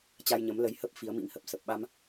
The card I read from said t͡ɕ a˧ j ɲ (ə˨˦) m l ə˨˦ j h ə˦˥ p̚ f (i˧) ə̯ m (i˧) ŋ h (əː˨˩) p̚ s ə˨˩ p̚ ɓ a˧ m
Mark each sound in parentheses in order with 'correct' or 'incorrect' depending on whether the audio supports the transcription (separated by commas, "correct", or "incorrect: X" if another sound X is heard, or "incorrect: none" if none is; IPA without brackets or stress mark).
correct, incorrect: i˨˦, incorrect: ḭ˧˥, incorrect: ə˨˩